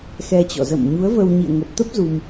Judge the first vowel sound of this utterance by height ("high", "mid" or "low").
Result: mid